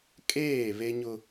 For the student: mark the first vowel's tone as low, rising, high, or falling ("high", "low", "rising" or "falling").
falling